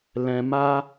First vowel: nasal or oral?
nasal